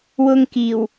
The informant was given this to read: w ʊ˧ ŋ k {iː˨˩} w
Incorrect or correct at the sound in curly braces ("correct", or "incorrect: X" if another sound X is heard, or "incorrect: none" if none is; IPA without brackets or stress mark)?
correct